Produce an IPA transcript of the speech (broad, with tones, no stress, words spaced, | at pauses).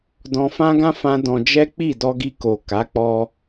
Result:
dɔ̃˧fã˦ɡã˦ fã˦dɔ̃˧ d͡ʒɛ˦k͡pi˦˨ dɔ˧ɡi˧ko˨ ka˨˦ k͡pɔ˧